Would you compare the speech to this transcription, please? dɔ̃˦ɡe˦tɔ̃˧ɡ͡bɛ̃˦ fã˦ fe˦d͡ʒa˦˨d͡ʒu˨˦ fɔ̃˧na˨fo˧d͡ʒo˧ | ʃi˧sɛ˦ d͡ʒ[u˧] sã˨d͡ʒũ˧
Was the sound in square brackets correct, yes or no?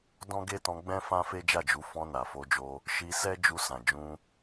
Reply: yes